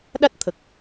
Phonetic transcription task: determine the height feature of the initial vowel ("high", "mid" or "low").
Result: low